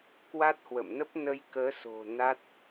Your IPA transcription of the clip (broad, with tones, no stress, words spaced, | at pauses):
kwa˦˥t̚hwə̰˧˨mnə˦˥p̚ nə˧jkəː˨˦so̤˨˩ na˦˥t̚